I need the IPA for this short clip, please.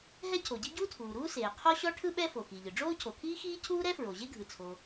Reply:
ɦ ɛ˥ cʰ o˩ ɟ i˥ ɟ uː˥ tʰ uː˩ ɾ uː˥ s eː˩ qʰ ɔ˥ ɕ ɔ˥ ʈʰ ɯ˥ ɓ ɛ˥ f o˩ x i˩ ʎ ɯ˩ ɖ͡ʐ oː˥ cʰ o˩ kʰ iː˥ x iː˥ cʰ uː˥ ɾ ɛ˥ f ɹ o˩ ʑ e˥ ɡʱ ɯ˩ t͡sʰ o˩

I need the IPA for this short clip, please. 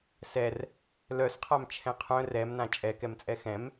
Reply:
s ɛ r | l œ s qʰ a m t͡ʃʰ ɛ̃ qʰ œ̃ r ɛ m n ã t͡ʃʼ ɛ k ɛ m t͡sʼ ɛ x ɛ̃ m

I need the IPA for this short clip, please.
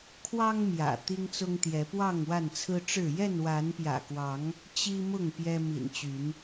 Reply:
kʰ w ɑ˦ ŋ m j ä̰˨˩ t̪ i˦ ŋ t͡s ʊ˦ ŋ t̪ j ɛ˨˦ p w ɑ˥˨ ŋ w a˥˨ n t͡sʰ ɹ̩˦ ʈ͡ʂ ɻ̩˥˨ j ɛ˥˨ n w a˨˦ n p j ä̰˨˩ k w ɑ˨˦ ŋ | t͡ɕ i˦ m ʊ˥˨ ŋ p j ɛ˦ m ḭ˨˩ n t͡ɕ y˨˦ n

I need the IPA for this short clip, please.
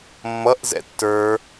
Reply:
mː ʌ ʔ z ɛ̰ tː ə˞

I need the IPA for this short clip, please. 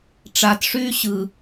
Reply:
ʈ͡ʂ a t ʂ yː ɕ ɯ

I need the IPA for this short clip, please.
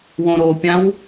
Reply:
w õ ɾ o pʲ ã w

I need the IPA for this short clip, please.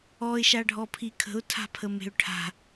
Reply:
ɔ ɪ̯ ʃ a ɖʱ ɔ pʰ i kʰ ə̤ ʊ̯ tʰ a̤ pʰ ə m e̤ ʊ̯ ʈʰ a̤

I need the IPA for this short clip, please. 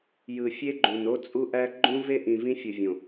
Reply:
j ɯ˨ fʲ e˦ ɡ͡ǃ ũ˨ n o˦ t͡sʼ u˦ ʔ æ˦ ɡ͡ǃ ũ˦ v e˦ ʔ ĩ˨ v ĩ˦ fʲ ɯ˨ vʲ õ˨

